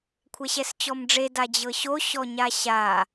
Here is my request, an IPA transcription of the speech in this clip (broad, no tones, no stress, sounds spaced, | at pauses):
kʷʰ ɛ ɕ ɛ s t͡ɕ ɔ m ɖ͡ʐ e d a d͡ʑ ɤ ɕ o ɕ ɔ ɲ a ɕ a